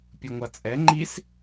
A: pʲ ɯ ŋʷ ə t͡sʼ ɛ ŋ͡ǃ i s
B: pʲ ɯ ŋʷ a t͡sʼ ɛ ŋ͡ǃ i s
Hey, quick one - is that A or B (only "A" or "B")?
B